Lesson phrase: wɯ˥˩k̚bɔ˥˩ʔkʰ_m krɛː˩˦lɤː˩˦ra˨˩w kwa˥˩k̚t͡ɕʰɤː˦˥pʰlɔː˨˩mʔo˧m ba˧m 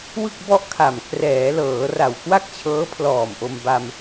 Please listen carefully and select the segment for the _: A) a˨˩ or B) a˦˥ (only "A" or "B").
A